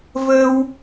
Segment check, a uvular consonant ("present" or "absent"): absent